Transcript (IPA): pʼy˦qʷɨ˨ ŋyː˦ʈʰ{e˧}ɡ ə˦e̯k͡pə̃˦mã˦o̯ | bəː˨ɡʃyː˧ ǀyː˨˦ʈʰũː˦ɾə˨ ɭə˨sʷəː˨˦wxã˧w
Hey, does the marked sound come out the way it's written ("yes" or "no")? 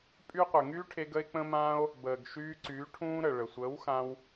yes